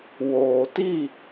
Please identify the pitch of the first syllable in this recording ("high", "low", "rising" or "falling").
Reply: low